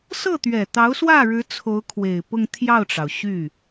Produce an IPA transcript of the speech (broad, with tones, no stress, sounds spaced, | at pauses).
s ɤ˥˩ t̪ ɥ ɛ˨˩ t̪ ɑ˧˥ ʊ̯ s w ä˥˩ ɻ ɻ̩˧˥ t͡sʰ o˧˥ ʊ̯ kʰ w e˨˩ ɪ̯ p ʊ˥˧ ŋ t̪ʰ j ɑ˥˩ ʊ̯ ʈ͡ʂ ɑ˩ ʊ̯ ɕ y˥˩